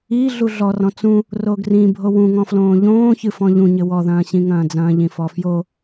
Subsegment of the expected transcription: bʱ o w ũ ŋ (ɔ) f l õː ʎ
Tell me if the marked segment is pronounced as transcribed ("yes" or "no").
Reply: no